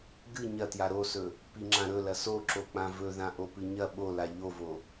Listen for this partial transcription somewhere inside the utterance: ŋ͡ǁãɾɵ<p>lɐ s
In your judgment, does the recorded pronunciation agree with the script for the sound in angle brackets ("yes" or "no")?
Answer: no